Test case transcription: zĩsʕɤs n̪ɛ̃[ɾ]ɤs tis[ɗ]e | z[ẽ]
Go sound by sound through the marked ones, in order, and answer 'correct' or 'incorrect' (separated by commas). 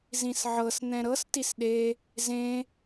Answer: correct, correct, correct